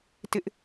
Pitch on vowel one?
high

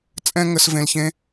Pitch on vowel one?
high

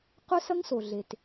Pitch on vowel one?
high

